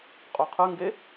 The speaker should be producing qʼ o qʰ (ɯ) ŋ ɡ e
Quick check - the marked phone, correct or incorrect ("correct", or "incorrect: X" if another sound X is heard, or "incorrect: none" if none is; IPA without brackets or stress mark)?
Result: correct